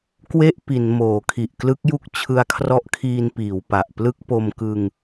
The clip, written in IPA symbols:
k w e˥˩ ʔ p i˩˦ n m oː˩˦ kʰ i˨˩ ʔ k l ɯ˦˥ k̚ j u˥˩ k̚ t͡ɕʰ ɯ˧ a̯ kʰ r ɔ˦˥ ʔ kʰ iː˧ n p iː˩˦ w p a˨˩ ʔ p l ɯ˥˩ k̚ p o˧ m k ɯ˧ ŋ

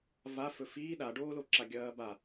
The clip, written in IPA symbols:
v a f ɵ f iː ɗ a ɖ oː l o ǁ a ɡʲ ɐː b a

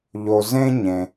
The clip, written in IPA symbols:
ʎ o˩ z ẽ˥ ɲ ẽ˩

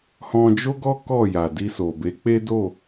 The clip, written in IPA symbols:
h ɔ̃˧ d͡ʒ o˦ ɡ ɔ˦ k ɔ˦˨ j a˨ d i˧ s o˨ b e˨˦ k͡p e˦ d o˦˨

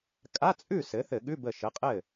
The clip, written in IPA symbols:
kʼ a˧˥˧ t͡sʼ ʉ˥˩ s ɘ˩˥ θ ɘ˧˩˧ ɠ ʉ˧˥˧ b ə˧˩ ʃ ə˩˥ qʼ ɘ˥˩

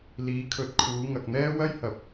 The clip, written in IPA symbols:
l iː˨˧ kʰ ɵ˨ t̚ kʰ uː˨˧ ŋ ɐ˨ k̚ n̪ ɛː˥ w ɐ˥ j h ɐ˨ p̚

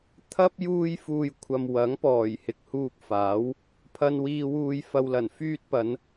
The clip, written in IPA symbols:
t̪ʰ ɐ˥ p̚ j uː˧ j f uː˨ j kʷʰ ɐ˨ m w ɐ˨˥ ŋ p ɔː˨˩ j h ɪ˨ k̚ h uː˧ k̚ f aː˨˥ w | pʰ ɐ˧ n w iː˨ w uː˨ j f ɐ˨ w l ɐ˨˩ n f yː˧ t̚ p ɐ˨˧ n

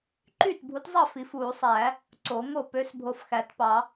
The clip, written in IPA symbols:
ǃ yː˥˩ t bʱ u˨˥ t zˤ ɑ˥˩ f i˨˩˦ f uː˨˩˦ sˤ æː˨˩˦ | ǀ o˨˩˦ ŋ o˥˩ p ø˨˥ s bʱ o˨ f x æ˨˩˦ t p ɑ˨˩˦

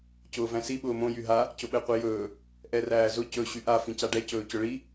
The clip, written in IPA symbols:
c ʊː v æ̃ s i ɓ ʊː m õ j y ɦ a | c ʊ ɓ ɛ qʷ i j ɵː | ʔ ɛ r æː z ʊ c ɵ ɕ y ʔ a f ĩ c a ɖ ɛ c ɵː c ʊ ɭ i

